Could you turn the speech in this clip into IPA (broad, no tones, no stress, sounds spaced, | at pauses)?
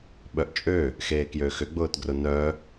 ɓ œ ʔ t͡ʃʼ ø | x eː k j ø x ʏ ɡ͡b ʊː t ɡ r ʊ n œ